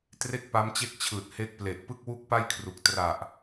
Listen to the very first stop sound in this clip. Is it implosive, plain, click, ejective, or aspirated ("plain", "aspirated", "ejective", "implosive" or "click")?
plain